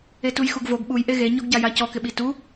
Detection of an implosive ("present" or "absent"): present